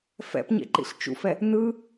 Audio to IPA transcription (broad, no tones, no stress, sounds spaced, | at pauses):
f ɛ̰ p ɲ ḛ ǃ ḭ ɬ t͡ʃ ṵ f ɛ | n ɯ